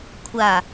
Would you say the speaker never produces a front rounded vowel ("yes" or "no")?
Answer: yes